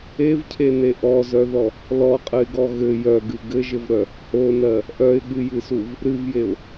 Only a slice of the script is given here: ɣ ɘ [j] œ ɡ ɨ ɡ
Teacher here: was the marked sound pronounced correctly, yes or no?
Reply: yes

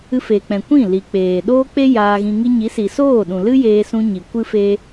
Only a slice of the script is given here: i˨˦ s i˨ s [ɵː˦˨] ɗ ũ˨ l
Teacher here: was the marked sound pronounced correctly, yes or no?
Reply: no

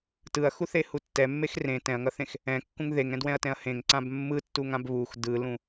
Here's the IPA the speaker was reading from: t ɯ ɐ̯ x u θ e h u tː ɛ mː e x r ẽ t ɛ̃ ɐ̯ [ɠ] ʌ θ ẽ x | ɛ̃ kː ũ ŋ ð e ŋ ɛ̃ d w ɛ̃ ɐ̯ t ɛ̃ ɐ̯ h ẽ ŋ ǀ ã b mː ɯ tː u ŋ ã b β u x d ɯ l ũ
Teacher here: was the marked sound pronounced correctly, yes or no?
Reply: no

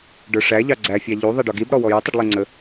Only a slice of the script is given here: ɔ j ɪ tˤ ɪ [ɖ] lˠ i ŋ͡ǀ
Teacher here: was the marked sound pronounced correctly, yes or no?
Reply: yes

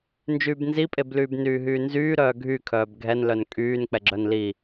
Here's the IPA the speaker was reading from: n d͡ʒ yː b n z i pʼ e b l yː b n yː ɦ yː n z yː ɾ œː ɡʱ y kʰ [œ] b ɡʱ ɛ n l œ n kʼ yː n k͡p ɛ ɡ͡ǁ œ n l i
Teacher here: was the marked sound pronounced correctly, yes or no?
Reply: no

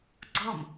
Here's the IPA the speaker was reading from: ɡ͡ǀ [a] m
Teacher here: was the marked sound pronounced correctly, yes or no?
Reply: no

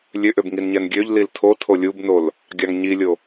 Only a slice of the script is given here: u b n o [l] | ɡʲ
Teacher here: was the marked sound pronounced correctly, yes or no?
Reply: yes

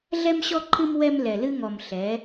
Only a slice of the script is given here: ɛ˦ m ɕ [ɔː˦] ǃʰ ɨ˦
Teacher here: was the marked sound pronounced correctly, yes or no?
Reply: no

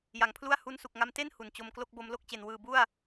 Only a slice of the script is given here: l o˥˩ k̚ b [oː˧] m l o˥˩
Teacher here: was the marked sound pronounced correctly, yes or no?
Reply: no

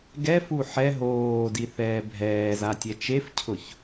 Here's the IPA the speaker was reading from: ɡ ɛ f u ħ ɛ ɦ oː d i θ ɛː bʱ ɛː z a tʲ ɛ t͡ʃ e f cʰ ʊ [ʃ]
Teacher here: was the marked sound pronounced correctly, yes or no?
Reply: no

